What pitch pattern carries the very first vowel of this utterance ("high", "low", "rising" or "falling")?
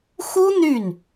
high